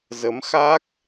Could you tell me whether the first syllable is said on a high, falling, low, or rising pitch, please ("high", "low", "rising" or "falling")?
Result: rising